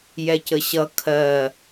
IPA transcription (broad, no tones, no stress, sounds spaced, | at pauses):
j ɛ c ə ɕ ʌ kʰ ɜ